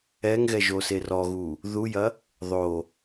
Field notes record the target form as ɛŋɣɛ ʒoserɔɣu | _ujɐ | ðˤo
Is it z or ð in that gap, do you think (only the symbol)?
ð